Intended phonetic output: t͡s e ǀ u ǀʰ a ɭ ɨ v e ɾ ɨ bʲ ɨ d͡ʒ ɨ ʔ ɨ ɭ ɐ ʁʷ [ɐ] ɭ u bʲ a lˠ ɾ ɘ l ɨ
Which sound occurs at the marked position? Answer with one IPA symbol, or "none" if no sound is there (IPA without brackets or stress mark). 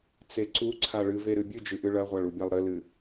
a